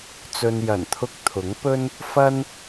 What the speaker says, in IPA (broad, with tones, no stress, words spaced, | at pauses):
t͡sɵ˧n jɐ˨˩nt̪ʰʊ˧k̚ t̪ʰʊ˨˥ŋpɵ˥n | fɐ˥n